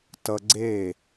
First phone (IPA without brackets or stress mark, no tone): t